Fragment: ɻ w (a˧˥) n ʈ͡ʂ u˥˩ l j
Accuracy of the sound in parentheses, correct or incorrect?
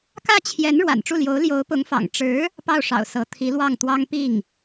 incorrect